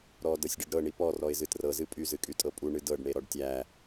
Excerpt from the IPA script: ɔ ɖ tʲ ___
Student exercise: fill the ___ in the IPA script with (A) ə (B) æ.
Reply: B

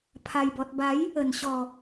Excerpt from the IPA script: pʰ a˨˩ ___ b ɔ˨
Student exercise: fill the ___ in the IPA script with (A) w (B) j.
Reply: B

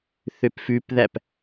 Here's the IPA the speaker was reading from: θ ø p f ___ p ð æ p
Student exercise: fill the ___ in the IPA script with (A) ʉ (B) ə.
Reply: A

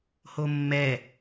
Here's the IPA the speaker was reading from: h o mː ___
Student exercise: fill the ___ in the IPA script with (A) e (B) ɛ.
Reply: B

